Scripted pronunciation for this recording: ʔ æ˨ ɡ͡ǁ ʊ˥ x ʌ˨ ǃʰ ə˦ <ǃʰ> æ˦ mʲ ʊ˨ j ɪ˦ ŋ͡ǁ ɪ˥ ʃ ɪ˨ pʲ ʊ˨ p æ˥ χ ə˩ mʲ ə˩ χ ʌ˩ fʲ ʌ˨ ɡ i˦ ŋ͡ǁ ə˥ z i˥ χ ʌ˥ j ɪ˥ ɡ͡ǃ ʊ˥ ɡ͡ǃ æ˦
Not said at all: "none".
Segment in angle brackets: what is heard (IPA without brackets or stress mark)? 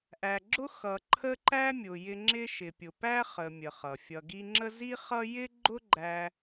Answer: ǃ